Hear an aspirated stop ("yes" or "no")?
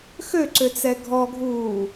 no